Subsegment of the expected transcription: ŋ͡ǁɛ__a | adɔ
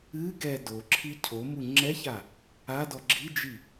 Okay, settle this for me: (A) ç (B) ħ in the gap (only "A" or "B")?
A